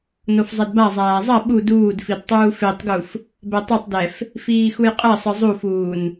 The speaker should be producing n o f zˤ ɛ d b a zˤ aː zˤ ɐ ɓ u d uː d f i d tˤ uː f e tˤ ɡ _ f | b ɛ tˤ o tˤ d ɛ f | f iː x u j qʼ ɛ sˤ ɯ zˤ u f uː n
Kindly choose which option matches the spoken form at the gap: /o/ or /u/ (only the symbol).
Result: u